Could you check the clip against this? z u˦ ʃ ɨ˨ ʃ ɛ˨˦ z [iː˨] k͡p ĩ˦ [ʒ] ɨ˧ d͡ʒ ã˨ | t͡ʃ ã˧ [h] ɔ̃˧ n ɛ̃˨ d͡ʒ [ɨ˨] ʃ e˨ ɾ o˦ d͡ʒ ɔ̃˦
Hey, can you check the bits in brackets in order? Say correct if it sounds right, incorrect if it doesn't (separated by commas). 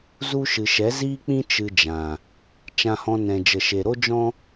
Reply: incorrect, incorrect, correct, incorrect